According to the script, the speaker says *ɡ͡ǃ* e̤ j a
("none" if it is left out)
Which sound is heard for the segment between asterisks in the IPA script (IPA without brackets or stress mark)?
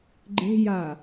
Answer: ɡ͡ǃ